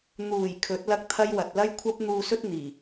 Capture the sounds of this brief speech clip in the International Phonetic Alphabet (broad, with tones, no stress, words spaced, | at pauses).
n̪uː˨˩j kʰɵ˨˥t̚lɐ˥k̚t̪ʰɐ˥j wɐ˨t̚ lɐ˥jkʷʰɐ˥p̚ n̪uː˧sɵ˥t̚ n̪iː˨˩